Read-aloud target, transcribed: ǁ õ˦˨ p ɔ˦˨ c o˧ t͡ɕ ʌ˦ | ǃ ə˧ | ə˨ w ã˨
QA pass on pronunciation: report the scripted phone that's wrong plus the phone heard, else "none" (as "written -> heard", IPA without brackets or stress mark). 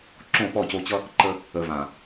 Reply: w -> v